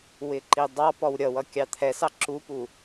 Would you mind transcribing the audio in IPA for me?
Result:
w ɪ ǃ i dˤ ɑ p ɔ w ɾʲ ʌ w ʌ kʲ ɑ t̪ʰ ɛ s ɑ ǁ u p u

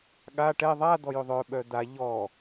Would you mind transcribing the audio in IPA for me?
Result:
ɠ a ʈ ɛ ðˤ a d̪ ɔ j ʏ ðˤ œ ɓ œ d̪ a ʎ ɔ

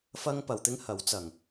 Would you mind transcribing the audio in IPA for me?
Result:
f ɐ˥ ŋ p ɐ˨˧ w t̪ ɪ˥ ŋ h ɐ˨˥ w t͡s ɐ˨˩ ŋ

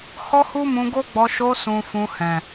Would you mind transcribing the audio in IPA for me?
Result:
h ɔ˦ h u˦ m ũ˧ ɡ o˦ ɡ͡b ɔ˧ ʃ o˧ s ũ˨ f ũ˧ h ɛ̃˨

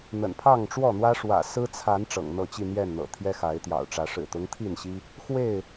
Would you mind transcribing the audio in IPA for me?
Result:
n̪ ə̰˨˩ n pʰ ɑ˥˨ ŋ ʈ͡ʂ w ɔ˥˨ n̪ w ä˦ ʂ w ä̰˨˩ s ɹ̩˦ t͡sʰ a˨˦ n ʈ͡ʂ ɤ̰˨˩ ŋ n̪ ɤ˥˨ t͡ɕ i˥˨ n̪ j ɛ˥˨ n n̪ ɤ̰˨˩ t̪ʰ j ɛ˦ x a˨˦ ɪ̯ t̪ j ɑ̰˨˩ ʊ̯ ʈ͡ʂ ä˨˦ ʂ ɻ̩˨˩ t̪ ʊ˦ ŋ t̪ʰ i˥˨ n ɕ i˦ | x w e˥˨ ɪ̯

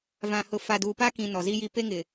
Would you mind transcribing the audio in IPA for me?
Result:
v ã˨ h ʊ˨ f a˨ d uː˨ p aː˦ k ĩ˨ n ɔ˨ z i˦ j i˦ p e˦ ŋ ɪ˨

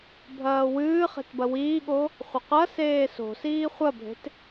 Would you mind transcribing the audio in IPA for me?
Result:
bʱ ɐː w ɨː χ e̤ t b ɐ w iː ɠ o | χʷ ɐ q ɐ s eː s o̤ s iː χʷ ɐ bʱ e̤ t

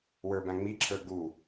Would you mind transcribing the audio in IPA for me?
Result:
w ə˞ b æ̃ ŋ͡m i ǁʰ ə˞ ɡ u

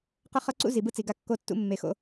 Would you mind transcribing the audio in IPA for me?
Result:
q ʌ˦ χ ʌ˦ ǀ ṵ˦ z i˨ b ɯ˦ t͡s i˨ ɡ a˦ kː o˦ tː ṵ˦ mː e˨ x o̰˦

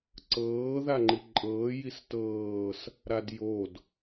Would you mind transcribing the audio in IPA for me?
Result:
ǀ ɤː ð a ŋ͡ǃ i ǃʼ ɤː j i s t ɤː s | ɾ a d j o d

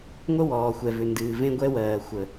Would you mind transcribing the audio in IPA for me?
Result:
ŋʷ ə˥ w ɔː˩ xʷ ɛ˩ v ʏ˩ n d ɨː˩ v ẽ˥ ɡʷ ɛ˥ w ɜː˩ xʷ ə˩

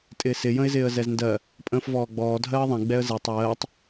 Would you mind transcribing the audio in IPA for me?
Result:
tʼ ɪː s ɪ j ə̃ ɪ̯ z ɪː ə̯ z ɛ z n d ɜ | pʼ ə̃ː f v ɔː ɡ͡b ɔː dʱ ɜː ðˤ ɛ̃ ɡ͡b ɛ ə̯ z ɪː tˤ w ɜː tˤ

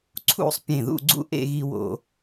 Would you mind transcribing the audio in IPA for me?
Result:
ǀʰ ṵ˥˧ sˤ pʲ ẽ˧˩ ð ṵ˥˧ ɡ͡ǀ ṵ˥ ʔ ḛ˥˧ ɣ i˧ w o̰˧

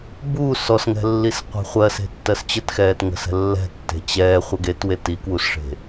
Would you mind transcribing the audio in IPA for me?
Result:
b uː s ɔ s ŋ ɛ̤ lː i s qʷ e̤ χʷ ɜ s e̤ tː ɜ s t͡ɕ ə t x ɛː t ŋ ə̤ s ɛ̤ lː ɛ̤ tː e̤ t͡ɕ ɛː χʷ ɜ ɡ e t w e t i k w u s ʂ e̤

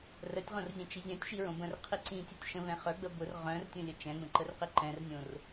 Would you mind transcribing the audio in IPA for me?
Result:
r ə tʲ ʁ õ r zʲ ɛ̃ t͡ʃ i zʲ œ̃ tʲ ʃ i ɹ õ b ə̃ r qʰ i ǀ ĩ tʲ ʊ tʲ ʃ ə̃ v ɛ̃ χ œ ɡ͡b ə b ʊ r ʁ œ̃ r tʲ õ lʲ ə t͡ʃ ɛ̃ ɡ͡b ə̃ ǃ ə r q i ǃ ɛ̃ r nʲ õ r

